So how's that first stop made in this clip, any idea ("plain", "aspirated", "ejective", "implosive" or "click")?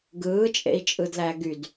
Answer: plain